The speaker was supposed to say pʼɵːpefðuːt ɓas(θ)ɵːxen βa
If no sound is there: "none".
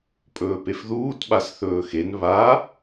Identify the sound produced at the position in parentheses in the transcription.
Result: θ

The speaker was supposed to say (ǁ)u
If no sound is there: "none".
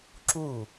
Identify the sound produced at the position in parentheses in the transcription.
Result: ǁ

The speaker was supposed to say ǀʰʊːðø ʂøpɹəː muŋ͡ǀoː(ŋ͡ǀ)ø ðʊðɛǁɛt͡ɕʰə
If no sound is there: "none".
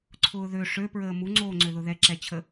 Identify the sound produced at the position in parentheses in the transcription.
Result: ŋ͡ǀ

